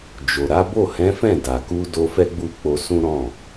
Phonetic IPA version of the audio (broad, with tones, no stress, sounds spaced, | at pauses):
d͡ʒ o˨ ɾ a˨˦ b o˦˨ h ɛ̃˨˦ f ɛ̃˦˨ d a˨ k u˧ d o˧ f ɛ˦ ɡ͡b u˦˨ k͡p o˧ s ũ˦ ɾ ɔ̃˦˨